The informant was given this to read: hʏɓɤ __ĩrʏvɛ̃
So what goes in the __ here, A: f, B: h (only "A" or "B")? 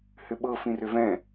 A